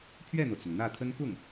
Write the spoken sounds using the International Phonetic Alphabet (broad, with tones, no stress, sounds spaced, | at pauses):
pʰ ɥ ɛ˥˩ n̪ ɤ˩ t͡s ʊ˩ ŋ n̪ ä˥˩ t̪ʰ ə˥ n k ʊ˥˩ ŋ